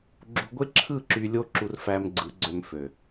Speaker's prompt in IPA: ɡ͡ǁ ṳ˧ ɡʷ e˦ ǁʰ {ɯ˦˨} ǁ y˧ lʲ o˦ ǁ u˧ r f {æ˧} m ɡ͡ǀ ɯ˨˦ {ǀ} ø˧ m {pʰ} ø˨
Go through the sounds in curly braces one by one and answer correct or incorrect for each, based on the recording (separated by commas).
correct, correct, incorrect, incorrect